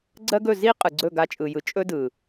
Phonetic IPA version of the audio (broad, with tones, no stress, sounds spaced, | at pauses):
ɡ͡ǀ ɜ˦ ɡ ɵ˦˨ z i˦ qʼ ɯ˨ ɡ͡ǀ ɵ˦˨ ɡ a˧ t͡ʃʼ ɯ˨ j ɯ˨ t͡ʃʼ ɵ˦ d ɯ˨